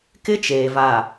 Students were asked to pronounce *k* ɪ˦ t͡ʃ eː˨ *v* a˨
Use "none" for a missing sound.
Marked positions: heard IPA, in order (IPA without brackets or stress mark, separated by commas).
k, v